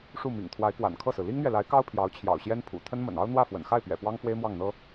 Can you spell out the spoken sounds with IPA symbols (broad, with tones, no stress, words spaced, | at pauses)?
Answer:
ʂu˥˩mḭ˨˩ŋ t̪ʰwa˧˥ɪ̯kwa̰˨˩nkʰɤ˥˩sɹ̩˩ li˥ŋn̪ɥɛ˨la˧˥ɪ̯kɑ˥ʊ̯ pʰjɑ˧˥ʊ̯t͡ɕʰjɑ̰˨˩ʊ̯ɕjɛ˥npʰṵ˨˩ t̪ʰə˥nmə̰˨˩nɑ˥ʊ̯ n̪wä˥˩fwə̰˨˩nxa˥˩ɪ̯pɥɛ̰˨˩ pwɑ˥ŋfwe˥ɪ̯mwɑ˥˩ŋ n̪ɤ˥